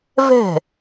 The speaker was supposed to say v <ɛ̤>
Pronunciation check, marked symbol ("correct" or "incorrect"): correct